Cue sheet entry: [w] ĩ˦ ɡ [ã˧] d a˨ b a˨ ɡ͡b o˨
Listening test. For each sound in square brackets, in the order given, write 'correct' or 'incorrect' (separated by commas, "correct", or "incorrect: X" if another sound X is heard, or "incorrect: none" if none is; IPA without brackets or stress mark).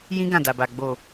incorrect: j, incorrect: ã˦˨